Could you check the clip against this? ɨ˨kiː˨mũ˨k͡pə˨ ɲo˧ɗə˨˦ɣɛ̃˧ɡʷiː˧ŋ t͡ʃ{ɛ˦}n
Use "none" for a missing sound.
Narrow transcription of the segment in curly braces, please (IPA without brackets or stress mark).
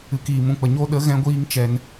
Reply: ɛ˦